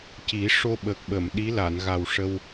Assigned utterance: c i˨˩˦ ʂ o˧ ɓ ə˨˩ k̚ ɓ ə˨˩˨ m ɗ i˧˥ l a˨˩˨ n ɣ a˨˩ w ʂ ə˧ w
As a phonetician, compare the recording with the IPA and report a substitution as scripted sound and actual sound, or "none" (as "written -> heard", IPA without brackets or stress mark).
none